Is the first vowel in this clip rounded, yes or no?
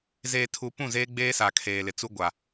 no